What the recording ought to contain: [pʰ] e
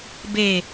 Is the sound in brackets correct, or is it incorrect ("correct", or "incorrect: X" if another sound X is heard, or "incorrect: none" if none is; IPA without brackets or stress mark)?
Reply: incorrect: b